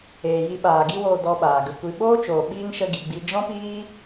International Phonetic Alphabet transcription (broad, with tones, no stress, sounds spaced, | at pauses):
eː˨ j i˧ ɓ aː˨ ɡ i˧ w oː˨ d ɔ˧ ɓ aː˨ ɡ ə˧ kʷ i˧ ɓ oː˦ t͡ʃ oː˨ ɓ iː˦ ŋ ʃ ə˦ ɡ i˧ ɡ͡b i˦ d͡ʒ ɔ̃˦ p iː˦